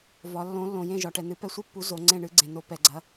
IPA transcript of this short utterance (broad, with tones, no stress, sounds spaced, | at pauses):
v ɒ˨˦ lː õ˨˦ lː õ˨ j ẽ˦˨ ʒ ɒ˨ ʈ ɛ˨ n ɨ˨˦ p ɛ˦˨ sʷ i˦˨ pː u˨˦ z o˨˦ ŋ͡ǀ ẽ˦˨ ɳ ɨ˨˦ ɡ͡ǀ ẽ˨ n o˨˦ p ɛ˨ ɡ͡ǀ ɐ˨˦